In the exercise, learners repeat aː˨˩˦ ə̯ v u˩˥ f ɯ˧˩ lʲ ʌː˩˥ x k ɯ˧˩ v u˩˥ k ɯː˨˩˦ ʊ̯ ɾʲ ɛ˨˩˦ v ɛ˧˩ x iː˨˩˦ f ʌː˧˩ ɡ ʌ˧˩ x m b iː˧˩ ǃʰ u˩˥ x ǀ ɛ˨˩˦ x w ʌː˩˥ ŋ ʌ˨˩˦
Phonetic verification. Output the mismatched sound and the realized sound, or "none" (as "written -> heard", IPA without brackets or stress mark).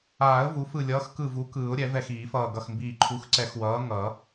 none